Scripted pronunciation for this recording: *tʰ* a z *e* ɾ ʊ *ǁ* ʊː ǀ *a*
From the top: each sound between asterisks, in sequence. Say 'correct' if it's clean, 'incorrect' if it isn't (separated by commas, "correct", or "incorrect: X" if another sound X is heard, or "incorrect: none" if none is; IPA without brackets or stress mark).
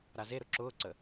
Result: incorrect: ɾ, correct, correct, incorrect: ə